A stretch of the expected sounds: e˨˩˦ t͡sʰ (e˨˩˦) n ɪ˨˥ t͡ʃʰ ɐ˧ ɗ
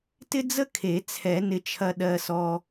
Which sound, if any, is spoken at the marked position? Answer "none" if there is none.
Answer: ɛ˨˩˦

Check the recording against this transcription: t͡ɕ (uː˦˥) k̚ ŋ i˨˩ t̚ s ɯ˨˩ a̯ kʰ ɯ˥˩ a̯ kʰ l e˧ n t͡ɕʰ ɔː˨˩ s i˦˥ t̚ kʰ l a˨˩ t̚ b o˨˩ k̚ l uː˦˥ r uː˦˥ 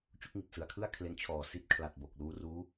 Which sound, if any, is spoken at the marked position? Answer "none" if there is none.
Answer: u˦˥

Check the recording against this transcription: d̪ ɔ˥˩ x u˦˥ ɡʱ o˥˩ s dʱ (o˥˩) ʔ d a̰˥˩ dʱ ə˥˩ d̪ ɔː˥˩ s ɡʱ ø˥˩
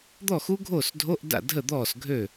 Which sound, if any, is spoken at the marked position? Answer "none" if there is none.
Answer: o˧˥˧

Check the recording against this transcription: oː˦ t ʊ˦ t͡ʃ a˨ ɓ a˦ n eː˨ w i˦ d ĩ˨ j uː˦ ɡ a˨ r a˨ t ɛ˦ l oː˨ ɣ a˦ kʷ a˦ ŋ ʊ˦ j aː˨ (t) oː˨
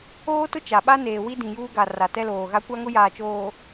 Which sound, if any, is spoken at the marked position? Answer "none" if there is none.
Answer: t͡ʃ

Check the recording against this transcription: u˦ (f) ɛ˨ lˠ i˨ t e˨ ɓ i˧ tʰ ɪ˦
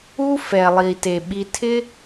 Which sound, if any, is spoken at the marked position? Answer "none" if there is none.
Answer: f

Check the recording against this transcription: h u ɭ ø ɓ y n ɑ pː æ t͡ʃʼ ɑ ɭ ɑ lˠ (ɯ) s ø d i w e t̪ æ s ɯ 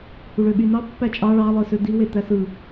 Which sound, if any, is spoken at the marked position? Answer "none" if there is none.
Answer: ɯ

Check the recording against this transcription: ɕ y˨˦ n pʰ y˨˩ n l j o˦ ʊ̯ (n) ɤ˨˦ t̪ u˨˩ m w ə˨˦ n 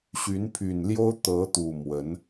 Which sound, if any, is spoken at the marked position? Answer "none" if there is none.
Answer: t̪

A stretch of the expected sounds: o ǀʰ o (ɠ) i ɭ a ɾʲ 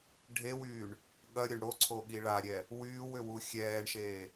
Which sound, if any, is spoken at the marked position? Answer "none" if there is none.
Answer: ɠ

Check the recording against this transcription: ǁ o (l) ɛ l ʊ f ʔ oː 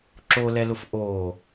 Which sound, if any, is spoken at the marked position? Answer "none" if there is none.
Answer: l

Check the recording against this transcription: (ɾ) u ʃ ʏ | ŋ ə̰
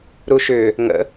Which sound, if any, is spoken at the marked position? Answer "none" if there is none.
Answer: ɾ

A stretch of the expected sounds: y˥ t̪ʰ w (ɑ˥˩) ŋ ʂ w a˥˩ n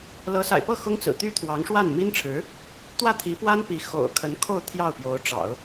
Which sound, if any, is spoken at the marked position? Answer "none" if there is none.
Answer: ɑ˧˥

